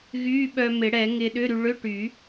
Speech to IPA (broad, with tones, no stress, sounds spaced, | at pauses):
ɣ yː˧˥˧ ɓ œ˧ m ɪ˨˩˦ ɽ ɛ˨˩˦ ŋ ɪː˧ ɗ ʏ˧˥˧ ɾ y˧ ɭ ʏ˧˥˧ ʈ y˨˩˦